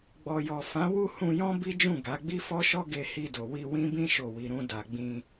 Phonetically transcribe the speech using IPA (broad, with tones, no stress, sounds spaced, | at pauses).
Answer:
ɡ͡b ɔ˨ j ɔ˨ f ã˨˦ w u˦ h ũ˧ j ɔ̃˦ b i˦ d͡ʒ ũ˦˨ ɡ a˨˦ ɡ͡b i˦ f ɔ˦ ʃ ɔ˦ ɡ e˧ h i˧ d o˨ w i˧ w ĩ˦ b ĩ˦ ʃ o˦˨ w i˧ ɾ ũ˧ d a˨ ɡ͡b ĩ˧